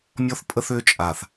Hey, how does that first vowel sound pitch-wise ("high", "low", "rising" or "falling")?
high